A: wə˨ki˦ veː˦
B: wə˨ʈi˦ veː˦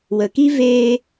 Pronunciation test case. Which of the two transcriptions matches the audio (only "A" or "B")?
A